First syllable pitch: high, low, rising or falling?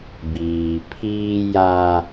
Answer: low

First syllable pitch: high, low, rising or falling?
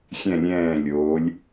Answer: falling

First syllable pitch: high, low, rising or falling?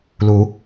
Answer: rising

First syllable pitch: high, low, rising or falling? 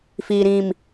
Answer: low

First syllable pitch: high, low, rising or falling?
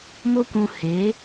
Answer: high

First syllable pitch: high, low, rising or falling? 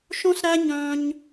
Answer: high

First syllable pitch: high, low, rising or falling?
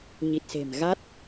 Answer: low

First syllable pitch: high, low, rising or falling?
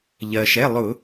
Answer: low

